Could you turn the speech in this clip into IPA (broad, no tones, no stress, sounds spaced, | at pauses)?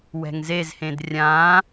w ɛ̤ ŋ z e z h ẽ d rʲ ã